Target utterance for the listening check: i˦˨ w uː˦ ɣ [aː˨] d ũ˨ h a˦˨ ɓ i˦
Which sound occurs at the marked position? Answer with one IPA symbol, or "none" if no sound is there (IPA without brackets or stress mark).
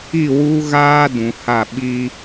aː˦